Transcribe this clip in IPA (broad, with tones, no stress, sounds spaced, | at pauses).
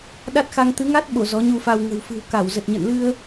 ɗ a˦˥ t̚ x a˧ ŋ t̪ ɨ˨˦ ŋ a˦˥ t̚ ɓ o˧˩ z ɔ˨˦ ɲ u˧ f a˧ w ŋ ə̤˨˩ w f ɨ̤˨˩ w k a˧˩ w z ə˨˩ t̚ ɲ ə̰˧˨ n l ɨ˧ ə̯